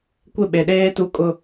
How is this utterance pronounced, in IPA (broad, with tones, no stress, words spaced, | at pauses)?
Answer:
kʷɪ˦˨ɓe˨ɗeː˦ tu˦kʼʊ˦